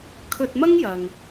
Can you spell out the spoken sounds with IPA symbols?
kʰ ɵ˧ t̚ m ɐ˥ ŋ j ɐ˨ ŋ

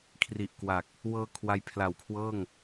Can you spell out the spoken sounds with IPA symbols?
kʰ r i˨˩ ʔ k w a˨˩ k̚ | w ɤː˧ kʰ w a˦˥ j pʰ l a˨˩ w kʰ w ɤː˥˩ ŋ

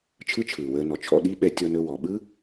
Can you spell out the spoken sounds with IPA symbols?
t͡ʃʰ ɯ˥ t͡ʃʰ ɯː˩ w əː˧ n ɔ˩ t͡ʃʰ ɔ̰˧ ɗ i˥ ɓ ɛ˧ tʲ ɔ˧ n ɵ˧ w ɔ˩ ɓ ɯ˥

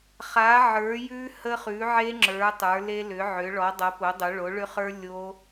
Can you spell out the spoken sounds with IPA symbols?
χ a˩˥ ʕ ə˞˩˥ j ʉ˦˥ h ə˦˥ χ ʉ˩˥ ʕ e˦˥ ŋ͡ǁ ə˞˩˥ tˤ ə˞˩˥ l e˦˥ l ʏ˩˥ ʕ ʏ˩˥ ɭ ɔ˩˥ dˤ ʌ˩˥ p o˩˥ dˤ o˩˥ ɭ o˩˥ ɭ ʏ˦˥ χ ə˞˦˥ lʲ o˦˥

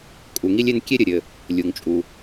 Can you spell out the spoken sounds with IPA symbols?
kʼ u˩ ŋ i˥ lʲ e˥ n kʲ e˥ ɾʲ ɘ˩ ɾʲ ɘ˩ | lʲ u˩ ŋ t͡ʃʼ u˩

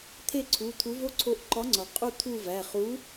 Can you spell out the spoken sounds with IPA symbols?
t̪ʰ e˥˧ ǀʰ u˩˧˩ t̪ʰ u˨˥ v o˥˧ ǀʰ o˨˥ ʔ ǃ ɒ˨˥ ŋ͡ǀ ɒ˩ qʼ u˥˧ t̪ʰ u˥˧ v æ˩˧˩ χ u˨˥

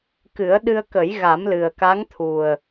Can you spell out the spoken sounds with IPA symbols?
k ɨ˨˩˦ ə̯ ɗ ɨ˧ ə̯ k ə˨˩˦ j ɣ a˨˩˦ m l ɨ˨˩ ə̯ k a˧˥ ŋ t̪ʰ u˨˩ ə̯

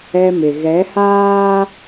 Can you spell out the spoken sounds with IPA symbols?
ɛ˦ m ɪ˨ ɣ ɛ˨˦ h aː˦

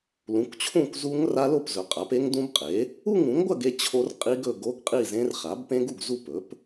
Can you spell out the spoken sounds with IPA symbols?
l ũ˩˥ kʷ t͡ɕʰ ũ˥˨ kʷ z u˦˥ ŋ r a˦˥ l o˥˨ p z ɵ˩˥ qʼ a˩˥ p e˦˥ ŋ d ũ˦˥ b qʼ e˩˥ | u˥˨ ŋ ũ˩˥ ŋ ɡʷ ɐ˥˨ ɡ e˥˨ t͡ɕʰ o˦˥ r qʼ i˦˥ ɡ ɵ˥˨ ɡ o˦˥ ɡ qʼ i˥˨ z ẽ˦˥ r χ a˩˥ b p ẽ˦˥ ɡ u˥˨ ɡ z u˥˨ p ɵ˩˥ p

